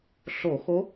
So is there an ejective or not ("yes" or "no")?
no